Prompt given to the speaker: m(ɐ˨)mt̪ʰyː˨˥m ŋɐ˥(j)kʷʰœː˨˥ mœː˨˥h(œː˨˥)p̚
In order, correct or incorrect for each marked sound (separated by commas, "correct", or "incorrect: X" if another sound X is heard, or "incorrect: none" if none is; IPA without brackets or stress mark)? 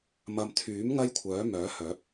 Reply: correct, correct, correct